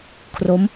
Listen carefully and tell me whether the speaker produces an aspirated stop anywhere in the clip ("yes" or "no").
yes